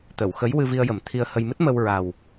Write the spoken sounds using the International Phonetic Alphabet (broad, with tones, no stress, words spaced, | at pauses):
t̪ə˨˩˨w xə˧˥j wɨ˧vi˧ə̯jə˨˩˦m t̪ʰi˧ə̯hə˧j mɨ˦˥t̚mə˧w ɹa˨˩w